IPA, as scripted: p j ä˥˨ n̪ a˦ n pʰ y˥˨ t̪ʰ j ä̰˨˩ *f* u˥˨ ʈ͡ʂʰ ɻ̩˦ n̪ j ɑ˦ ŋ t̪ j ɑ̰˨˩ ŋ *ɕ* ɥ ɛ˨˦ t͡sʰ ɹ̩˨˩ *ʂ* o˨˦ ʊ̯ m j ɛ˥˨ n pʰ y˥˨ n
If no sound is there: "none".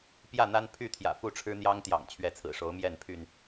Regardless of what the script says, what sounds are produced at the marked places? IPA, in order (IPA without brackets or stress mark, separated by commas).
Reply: f, t͡ɕʰ, ʂ